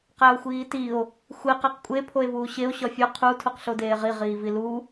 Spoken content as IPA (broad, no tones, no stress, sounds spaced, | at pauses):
q æ o̯ xʷ iː t i o̯ | xʷ e q e q kʷʼ e pʰ o e̯ v uː ɕ e o̯ ɕ ɒ fʲ o qʰ u tʰ u q ɬ o d eː ʁ i ʁ iː v i l u